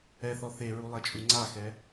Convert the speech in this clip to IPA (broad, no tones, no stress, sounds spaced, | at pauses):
ɛ θ ɔ θ e ɹ u lˠ ɛ t͡ʃʼ u ŋ͡ǀ a x ɛ